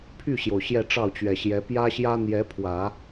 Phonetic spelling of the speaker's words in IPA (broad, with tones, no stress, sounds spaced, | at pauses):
pʰ y˥˩ ɕ j o˩ ʊ̯ ɕ j ɛ˥˧ ʈ͡ʂ ɑ˥˩ ʊ̯ t͡ɕ ɥ ɛ˨˩ ɕ j ɛ˧˥ p j ä˥ ɕ j ä˥ n̪ j ɛ˧˥ pʰ w ä˨˩˦